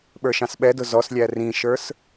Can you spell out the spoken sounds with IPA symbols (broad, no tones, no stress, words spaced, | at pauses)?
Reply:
ɓə˞ʃɑ̃sɓɛdʊ zɔslʲæ rĩʃə˞s